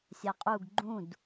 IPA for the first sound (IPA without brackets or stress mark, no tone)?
sʲ